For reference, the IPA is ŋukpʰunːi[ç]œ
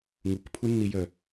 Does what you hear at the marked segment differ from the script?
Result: yes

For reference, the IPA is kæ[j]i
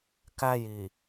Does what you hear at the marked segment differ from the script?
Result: no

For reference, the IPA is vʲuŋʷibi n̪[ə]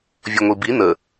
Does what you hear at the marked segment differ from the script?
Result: no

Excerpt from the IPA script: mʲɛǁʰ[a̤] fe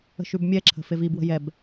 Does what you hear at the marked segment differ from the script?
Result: yes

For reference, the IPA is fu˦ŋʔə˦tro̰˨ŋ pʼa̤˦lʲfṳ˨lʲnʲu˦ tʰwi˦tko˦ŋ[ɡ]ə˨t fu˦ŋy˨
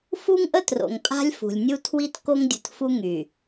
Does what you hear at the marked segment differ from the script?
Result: yes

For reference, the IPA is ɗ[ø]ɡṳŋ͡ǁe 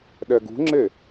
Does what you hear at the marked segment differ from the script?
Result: yes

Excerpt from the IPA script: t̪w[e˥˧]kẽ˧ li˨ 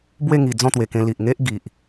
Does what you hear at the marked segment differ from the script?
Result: yes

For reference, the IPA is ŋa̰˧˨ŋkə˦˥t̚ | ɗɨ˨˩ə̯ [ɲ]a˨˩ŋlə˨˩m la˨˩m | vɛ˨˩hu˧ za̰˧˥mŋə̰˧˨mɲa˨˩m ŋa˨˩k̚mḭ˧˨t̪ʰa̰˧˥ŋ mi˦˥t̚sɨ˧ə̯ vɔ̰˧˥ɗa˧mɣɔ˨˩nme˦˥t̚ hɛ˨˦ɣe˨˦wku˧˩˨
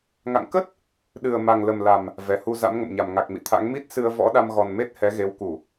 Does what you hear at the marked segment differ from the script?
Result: yes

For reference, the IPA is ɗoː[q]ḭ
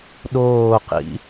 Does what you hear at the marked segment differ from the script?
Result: no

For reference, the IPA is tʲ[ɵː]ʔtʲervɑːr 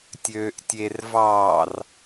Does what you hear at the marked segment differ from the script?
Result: yes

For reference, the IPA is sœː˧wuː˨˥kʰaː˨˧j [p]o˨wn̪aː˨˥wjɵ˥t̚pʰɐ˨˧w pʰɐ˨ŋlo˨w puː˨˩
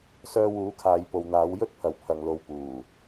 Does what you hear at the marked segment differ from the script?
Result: no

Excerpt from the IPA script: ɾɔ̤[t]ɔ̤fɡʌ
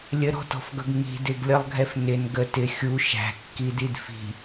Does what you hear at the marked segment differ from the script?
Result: no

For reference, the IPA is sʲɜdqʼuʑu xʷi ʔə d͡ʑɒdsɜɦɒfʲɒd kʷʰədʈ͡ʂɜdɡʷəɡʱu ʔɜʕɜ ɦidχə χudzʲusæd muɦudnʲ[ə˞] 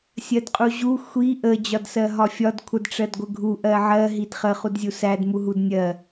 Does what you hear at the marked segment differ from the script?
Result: yes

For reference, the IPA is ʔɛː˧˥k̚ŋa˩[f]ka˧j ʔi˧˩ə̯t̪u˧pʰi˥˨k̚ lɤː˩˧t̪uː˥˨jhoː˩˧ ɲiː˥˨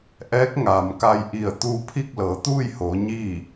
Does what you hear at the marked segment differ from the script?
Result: yes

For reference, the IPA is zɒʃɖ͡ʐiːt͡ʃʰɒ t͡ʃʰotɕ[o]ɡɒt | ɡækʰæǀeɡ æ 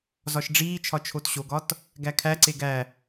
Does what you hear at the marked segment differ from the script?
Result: no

